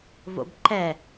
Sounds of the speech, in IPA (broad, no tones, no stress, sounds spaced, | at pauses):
v o̰ b ǃ ɛ